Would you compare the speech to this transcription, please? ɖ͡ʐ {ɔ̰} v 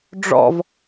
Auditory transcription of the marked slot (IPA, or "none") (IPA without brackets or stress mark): ɔ̰